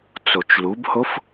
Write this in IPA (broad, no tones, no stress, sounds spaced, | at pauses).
t͡s o t͡ʃ l u b h o f